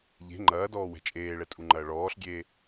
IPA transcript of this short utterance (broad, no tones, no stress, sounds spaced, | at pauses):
ʎ e̤ ŋ͡ǃ ɐː d ɔː w ɛ̤ t͡ʃʼ eː ɭ ɛ tʼ u ŋ͡ǃ ɐː ɭ ɔː ɬ ɡʲ eː